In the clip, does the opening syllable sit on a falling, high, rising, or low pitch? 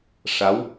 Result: rising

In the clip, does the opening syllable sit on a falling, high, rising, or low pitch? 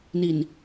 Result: low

